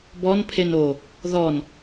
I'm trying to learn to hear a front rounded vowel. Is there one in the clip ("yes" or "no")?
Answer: no